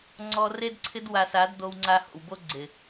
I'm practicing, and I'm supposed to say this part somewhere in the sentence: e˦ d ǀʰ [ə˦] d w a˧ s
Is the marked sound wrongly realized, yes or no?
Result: yes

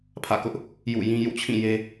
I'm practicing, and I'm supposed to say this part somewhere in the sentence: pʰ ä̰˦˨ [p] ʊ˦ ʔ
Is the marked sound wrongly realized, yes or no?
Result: yes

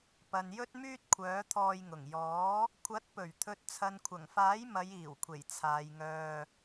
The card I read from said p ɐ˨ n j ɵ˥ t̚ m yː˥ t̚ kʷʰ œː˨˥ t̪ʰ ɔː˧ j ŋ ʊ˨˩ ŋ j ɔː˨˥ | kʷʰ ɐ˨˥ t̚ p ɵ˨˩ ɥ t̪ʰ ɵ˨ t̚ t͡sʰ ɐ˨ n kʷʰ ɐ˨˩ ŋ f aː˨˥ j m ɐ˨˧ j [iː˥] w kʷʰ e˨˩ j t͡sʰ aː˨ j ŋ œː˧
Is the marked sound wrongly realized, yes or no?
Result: yes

